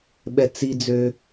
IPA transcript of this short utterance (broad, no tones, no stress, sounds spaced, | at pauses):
ɓ ɛ t͡s i d͡z ø